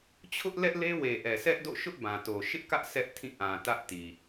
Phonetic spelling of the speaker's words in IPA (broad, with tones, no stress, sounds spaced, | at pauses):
t͡ɕʰ ʊ˦ ʔ l ɛ˦ ʔ l e˦ w e˨ ʔ ɛ˨ sʰ ɛ˦ ʔ d o̰˦˨ ʃ ʊ˦ ʔ b ã˨ t o˨ ʃ ɪ˦ ʔ k ä˦ ʔ sʰ ɛ˦ ʔ tʰ ĩ˦˨ ʔ ã˨ t ä˦ ʔ t i˨